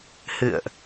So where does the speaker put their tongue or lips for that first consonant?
throat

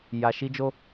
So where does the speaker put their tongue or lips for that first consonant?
palate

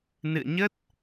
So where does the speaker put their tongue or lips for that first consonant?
tongue tip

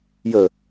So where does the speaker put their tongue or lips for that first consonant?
palate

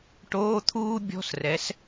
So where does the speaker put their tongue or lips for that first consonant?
retroflex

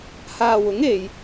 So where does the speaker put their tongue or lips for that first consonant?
throat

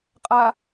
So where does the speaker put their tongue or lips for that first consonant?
uvula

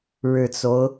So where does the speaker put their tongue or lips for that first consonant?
retroflex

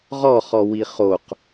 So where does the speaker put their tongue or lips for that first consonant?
uvula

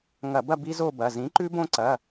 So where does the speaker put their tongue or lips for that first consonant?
velum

